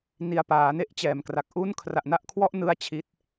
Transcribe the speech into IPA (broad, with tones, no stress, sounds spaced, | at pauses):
n i˧ a̯ p aː˩˦ n e˥˩ ʔ t͡ɕ ɛː˩˦ m k r a˨˩ k̚ ʔ u˥˩ n kʰ r a˨˩ ʔ n a˥˩ ʔ kʰ w ɔ˥˩ ʔ n ɯ˥˩ a̯ t͡ɕʰ i˦˥ t̚